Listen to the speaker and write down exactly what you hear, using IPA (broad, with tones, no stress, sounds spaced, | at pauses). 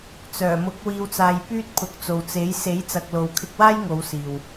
t͡s œː˨˩ m ʊ˨˥ k̚ w iː˧ w t͡s aː˧ j p yː˥ t̚ pʰ ʊ˨˥ k̚ t͡s o˨ w t͡s e˨˥ j s e˨˥ j t͡s ɐ˨ k̚ l o˨ w kʰ ɪ˧ k̚ w aː˥ j ŋ o˨˧ w s iː˨ w